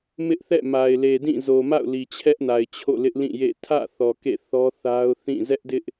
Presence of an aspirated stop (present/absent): present